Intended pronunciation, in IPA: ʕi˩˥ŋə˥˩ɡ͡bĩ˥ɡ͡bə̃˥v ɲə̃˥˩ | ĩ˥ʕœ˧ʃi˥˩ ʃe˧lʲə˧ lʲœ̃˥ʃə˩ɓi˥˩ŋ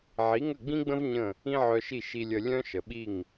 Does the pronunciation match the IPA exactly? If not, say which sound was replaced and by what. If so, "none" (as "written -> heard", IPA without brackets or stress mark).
e˧ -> i˧